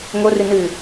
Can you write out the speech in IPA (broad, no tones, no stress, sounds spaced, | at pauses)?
ŋ o r ɨ n ɨ